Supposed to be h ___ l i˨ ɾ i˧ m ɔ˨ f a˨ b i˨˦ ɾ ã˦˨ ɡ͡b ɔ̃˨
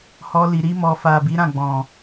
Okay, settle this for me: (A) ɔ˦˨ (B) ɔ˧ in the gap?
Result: B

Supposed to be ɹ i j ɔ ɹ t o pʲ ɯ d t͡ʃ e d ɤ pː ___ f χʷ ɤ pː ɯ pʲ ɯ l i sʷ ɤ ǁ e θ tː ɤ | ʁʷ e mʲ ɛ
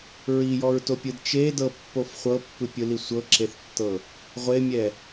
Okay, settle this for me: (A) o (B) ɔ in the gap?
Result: A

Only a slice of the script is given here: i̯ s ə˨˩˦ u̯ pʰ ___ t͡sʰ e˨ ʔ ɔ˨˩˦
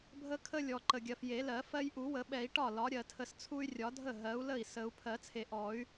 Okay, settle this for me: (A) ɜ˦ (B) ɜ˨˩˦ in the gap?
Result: B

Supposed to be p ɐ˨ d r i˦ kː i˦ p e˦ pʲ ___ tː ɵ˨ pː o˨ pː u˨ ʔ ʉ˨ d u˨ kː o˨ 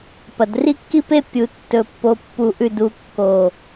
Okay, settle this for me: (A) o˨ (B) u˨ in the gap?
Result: B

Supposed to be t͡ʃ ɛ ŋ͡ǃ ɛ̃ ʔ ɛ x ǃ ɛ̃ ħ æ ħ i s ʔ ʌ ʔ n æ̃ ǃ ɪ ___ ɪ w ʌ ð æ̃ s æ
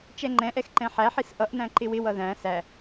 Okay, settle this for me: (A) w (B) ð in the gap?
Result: A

